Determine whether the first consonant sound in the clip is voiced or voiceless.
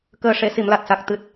voiceless